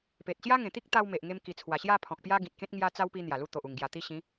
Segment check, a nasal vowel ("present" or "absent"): present